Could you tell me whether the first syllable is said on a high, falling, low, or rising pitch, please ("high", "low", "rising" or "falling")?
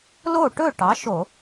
falling